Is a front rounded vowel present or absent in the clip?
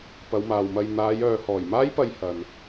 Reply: present